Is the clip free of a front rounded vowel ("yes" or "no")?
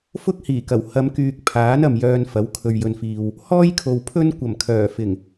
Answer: no